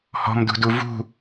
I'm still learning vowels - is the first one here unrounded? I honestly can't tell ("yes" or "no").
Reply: no